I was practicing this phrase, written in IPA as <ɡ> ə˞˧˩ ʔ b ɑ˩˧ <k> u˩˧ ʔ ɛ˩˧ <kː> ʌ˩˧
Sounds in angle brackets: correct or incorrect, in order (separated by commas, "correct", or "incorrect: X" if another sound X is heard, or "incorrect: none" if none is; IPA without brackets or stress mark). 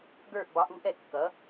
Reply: correct, incorrect: ʔ, correct